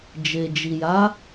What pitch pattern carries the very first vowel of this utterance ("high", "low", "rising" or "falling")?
low